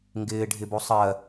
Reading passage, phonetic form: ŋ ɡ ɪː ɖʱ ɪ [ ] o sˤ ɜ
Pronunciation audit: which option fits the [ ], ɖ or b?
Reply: b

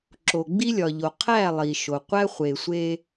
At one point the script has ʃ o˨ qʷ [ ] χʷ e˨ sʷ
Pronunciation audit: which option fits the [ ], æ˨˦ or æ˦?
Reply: æ˦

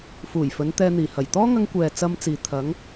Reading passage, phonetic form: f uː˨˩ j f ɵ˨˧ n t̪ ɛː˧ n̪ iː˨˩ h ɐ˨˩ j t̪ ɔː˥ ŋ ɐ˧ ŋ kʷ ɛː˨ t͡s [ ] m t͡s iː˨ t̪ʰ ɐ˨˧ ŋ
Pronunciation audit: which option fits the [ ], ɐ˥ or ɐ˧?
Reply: ɐ˧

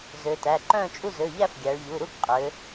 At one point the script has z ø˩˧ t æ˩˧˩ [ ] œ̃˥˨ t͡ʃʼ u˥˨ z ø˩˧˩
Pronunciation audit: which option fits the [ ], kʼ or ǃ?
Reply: ǃ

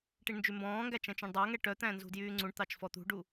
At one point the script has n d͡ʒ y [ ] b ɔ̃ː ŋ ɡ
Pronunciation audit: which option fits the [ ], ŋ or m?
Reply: m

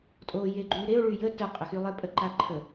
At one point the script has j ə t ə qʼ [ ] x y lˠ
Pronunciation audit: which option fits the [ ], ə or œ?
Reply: ə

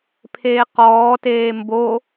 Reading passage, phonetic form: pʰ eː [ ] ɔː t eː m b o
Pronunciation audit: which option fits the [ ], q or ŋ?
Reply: q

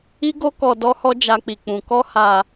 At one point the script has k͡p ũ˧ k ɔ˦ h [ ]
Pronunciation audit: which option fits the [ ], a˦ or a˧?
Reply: a˧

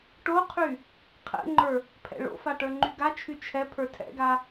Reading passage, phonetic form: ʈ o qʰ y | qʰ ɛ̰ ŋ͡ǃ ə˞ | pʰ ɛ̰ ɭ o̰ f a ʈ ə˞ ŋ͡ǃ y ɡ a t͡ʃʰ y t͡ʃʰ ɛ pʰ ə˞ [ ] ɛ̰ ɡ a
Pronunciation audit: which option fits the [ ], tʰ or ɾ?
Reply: tʰ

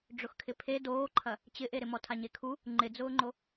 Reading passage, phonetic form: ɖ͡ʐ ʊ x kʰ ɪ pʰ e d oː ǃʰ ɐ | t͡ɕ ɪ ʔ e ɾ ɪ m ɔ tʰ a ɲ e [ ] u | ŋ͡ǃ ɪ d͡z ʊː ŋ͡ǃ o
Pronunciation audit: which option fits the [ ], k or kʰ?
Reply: kʰ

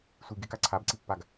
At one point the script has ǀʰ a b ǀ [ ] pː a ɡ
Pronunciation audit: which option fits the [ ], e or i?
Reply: i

